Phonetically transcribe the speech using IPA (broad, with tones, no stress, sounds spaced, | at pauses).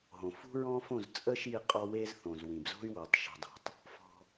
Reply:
ɦ õ˨ f ṳ˦ ɹ ɔ̃˦ f õ˦˨ z t͡sʼ ə˦ ʃ i˦˨ qʼ ɔ˦ w e˦ z θ õ˨ z w ĩ˨ b z o̤˦ y̯ w o˨ tˤ ʃ ṳ˨ dˤ o̤˨ tˤ | f ɔ̤˦